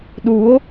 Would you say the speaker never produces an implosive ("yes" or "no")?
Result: no